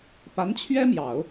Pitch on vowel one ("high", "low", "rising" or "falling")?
rising